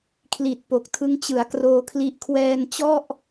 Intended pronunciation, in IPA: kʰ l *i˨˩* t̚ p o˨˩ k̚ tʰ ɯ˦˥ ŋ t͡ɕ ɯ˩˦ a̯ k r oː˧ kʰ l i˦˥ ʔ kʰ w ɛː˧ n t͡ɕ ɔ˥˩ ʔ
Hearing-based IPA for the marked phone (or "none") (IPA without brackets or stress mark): i˨˩